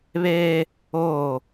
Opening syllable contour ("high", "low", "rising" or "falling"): high